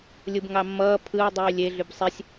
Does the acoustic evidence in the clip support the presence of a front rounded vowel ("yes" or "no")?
yes